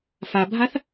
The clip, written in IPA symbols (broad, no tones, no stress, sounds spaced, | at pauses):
f a bʱ a θ